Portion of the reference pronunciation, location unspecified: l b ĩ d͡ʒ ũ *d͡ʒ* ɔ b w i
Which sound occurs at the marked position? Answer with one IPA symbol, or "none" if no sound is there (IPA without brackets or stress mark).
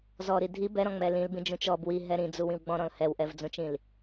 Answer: t͡ʃ